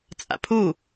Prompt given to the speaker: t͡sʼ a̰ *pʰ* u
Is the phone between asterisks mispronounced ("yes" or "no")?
no